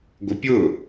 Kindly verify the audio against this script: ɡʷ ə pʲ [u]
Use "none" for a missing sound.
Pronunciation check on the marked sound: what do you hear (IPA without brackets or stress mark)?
ʊ